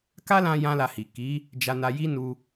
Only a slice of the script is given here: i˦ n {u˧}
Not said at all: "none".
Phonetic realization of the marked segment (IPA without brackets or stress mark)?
u˧